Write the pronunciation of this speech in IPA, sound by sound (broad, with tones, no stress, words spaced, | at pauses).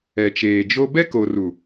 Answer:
ɛ˨t͡ʃeː˨d͡ʒo˦ bɛ˦ko˨ ru˨